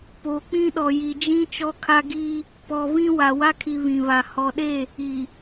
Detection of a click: absent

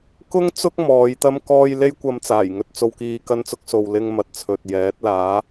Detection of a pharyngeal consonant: absent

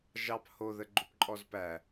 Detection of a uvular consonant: absent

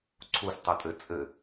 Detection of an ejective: present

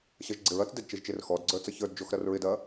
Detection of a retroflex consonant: absent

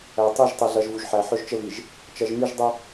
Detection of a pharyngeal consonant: present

